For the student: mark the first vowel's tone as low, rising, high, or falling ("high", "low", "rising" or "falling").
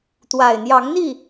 low